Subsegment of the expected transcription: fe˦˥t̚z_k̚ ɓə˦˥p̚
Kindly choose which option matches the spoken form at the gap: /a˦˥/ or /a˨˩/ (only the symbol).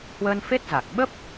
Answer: a˨˩